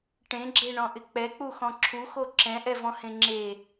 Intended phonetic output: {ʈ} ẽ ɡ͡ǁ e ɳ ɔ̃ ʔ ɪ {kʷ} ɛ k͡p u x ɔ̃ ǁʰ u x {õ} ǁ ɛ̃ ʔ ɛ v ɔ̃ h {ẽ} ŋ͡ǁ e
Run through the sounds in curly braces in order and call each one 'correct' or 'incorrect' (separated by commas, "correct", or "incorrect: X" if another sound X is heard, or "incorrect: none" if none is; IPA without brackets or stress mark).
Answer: correct, incorrect: k͡p, incorrect: o, correct